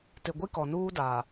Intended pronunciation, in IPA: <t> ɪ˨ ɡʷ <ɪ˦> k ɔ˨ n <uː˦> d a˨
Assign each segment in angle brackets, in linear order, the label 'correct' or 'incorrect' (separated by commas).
correct, incorrect, correct